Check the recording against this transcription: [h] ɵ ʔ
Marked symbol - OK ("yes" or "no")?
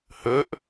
yes